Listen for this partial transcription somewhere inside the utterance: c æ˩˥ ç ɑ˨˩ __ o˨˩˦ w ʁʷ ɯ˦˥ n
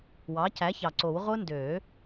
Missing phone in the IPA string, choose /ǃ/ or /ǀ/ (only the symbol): ǀ